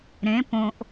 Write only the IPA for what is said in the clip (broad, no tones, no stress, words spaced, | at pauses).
ɾẽ põʔ